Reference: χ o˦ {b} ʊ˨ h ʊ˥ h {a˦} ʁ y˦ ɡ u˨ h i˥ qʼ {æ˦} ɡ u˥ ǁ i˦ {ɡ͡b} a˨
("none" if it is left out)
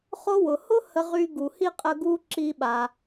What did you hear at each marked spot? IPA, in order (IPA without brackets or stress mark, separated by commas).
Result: w, ə˦, ə˦, ɓ